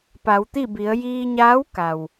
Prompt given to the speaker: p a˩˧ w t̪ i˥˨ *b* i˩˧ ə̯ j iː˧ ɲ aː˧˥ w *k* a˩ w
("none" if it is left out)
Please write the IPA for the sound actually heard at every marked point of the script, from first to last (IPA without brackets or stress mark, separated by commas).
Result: b, k